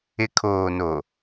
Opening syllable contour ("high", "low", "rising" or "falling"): low